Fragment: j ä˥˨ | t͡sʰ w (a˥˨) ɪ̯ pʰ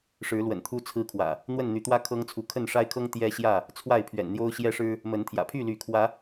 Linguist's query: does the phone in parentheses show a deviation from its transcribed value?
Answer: no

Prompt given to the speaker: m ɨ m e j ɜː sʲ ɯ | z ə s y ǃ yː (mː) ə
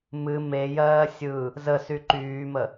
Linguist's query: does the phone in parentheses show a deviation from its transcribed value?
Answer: yes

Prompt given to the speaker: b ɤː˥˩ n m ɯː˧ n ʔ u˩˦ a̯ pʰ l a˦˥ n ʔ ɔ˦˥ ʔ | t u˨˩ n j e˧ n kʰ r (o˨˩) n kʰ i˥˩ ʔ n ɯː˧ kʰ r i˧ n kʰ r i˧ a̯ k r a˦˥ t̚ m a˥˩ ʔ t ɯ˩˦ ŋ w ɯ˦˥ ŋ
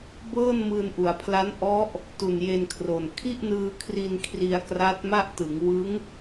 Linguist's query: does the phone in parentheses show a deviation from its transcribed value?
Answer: no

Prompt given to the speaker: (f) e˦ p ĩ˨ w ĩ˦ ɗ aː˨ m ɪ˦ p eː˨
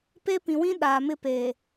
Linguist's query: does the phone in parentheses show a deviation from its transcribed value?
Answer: yes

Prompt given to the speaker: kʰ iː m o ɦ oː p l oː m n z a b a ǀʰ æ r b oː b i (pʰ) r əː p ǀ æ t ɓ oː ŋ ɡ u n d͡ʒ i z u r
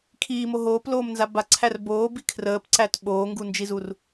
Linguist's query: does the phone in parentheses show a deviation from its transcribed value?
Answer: yes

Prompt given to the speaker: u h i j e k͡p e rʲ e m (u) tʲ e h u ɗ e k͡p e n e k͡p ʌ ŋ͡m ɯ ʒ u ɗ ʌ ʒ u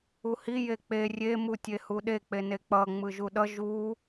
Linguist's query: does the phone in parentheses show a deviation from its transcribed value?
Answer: no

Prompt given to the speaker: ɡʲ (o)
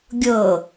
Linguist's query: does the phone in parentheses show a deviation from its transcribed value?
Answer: yes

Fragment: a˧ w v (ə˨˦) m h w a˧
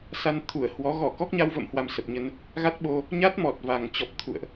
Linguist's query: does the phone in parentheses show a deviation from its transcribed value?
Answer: yes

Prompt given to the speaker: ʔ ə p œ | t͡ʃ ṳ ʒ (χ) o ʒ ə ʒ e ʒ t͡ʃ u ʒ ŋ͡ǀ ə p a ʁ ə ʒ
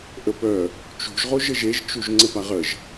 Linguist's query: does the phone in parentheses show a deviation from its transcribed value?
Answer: yes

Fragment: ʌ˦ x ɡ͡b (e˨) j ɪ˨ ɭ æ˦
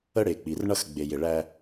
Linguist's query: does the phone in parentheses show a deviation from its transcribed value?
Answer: no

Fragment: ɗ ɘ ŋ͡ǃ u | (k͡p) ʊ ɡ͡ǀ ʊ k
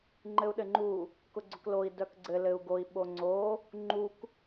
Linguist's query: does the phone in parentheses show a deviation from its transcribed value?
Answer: yes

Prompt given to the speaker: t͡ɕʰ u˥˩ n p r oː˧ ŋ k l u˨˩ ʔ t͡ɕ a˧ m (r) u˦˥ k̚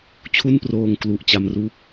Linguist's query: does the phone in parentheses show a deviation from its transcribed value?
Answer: no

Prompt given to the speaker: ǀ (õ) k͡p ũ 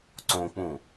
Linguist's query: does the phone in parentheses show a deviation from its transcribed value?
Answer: no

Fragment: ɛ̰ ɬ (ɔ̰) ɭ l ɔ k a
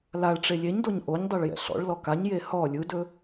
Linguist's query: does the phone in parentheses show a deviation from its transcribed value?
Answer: no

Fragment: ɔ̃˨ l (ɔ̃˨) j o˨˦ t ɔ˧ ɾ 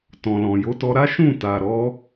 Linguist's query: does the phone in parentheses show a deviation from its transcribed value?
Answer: no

